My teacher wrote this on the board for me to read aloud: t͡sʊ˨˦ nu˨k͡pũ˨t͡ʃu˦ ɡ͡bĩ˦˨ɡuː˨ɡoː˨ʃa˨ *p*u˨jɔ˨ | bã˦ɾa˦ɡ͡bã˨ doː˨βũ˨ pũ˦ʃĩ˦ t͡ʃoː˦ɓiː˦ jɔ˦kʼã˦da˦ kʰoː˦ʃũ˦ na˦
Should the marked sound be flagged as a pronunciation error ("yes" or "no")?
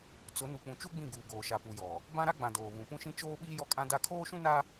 no